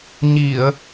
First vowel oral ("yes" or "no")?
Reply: yes